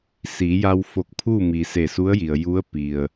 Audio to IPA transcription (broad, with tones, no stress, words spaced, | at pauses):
siː˩˧ja˧w fo˧˩k̚pʰuː˥˨miː˩ se˧˩su˧˥ə̯ji˩ə̯ ju˧˥ə̯pi˩ə̯